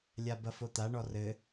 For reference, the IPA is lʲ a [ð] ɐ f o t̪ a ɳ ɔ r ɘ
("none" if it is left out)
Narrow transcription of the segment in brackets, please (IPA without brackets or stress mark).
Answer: b